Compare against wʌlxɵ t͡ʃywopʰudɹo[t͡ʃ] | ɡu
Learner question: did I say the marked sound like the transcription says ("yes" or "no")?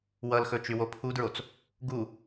no